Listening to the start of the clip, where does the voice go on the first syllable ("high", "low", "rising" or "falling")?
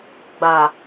low